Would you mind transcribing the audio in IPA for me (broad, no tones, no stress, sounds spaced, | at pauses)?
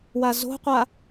w a z o̤ qʷ a